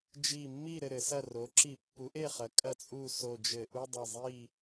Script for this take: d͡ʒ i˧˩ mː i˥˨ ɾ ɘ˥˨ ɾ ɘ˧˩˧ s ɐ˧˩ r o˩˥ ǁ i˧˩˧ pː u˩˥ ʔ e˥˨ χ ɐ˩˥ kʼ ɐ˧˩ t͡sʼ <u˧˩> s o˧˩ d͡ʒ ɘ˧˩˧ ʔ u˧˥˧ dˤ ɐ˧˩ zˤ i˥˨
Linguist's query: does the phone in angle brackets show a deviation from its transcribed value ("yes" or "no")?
no